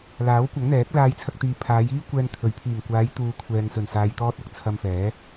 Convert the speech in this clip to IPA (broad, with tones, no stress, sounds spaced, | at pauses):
l aː˨˥ w kʷ ɐ˨˥ ŋ n̪ ɛː˨˥ k̚ l aː˧ j t͡sʰ ɐ˧ k̚ t̪ iː˨ pʰ aː˨˧ j iː˥ kʷ ɛː˧ n t̪ʰ ɵ˨ ɥ pʰ iː˨˩ ŋ kʷ aː˨˧ j t̪ uː˨ kʷʰ ɛː˨ ŋ s ɵ˨˩ n s aː˨ j t̪ ɔː˧ t̚ ɐ˨ k̚ t͡sʰ ɐ˧ m f ɛː˨˥